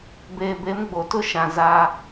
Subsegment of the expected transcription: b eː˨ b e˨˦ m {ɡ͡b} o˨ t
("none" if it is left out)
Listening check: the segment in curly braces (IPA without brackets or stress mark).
ɡ͡b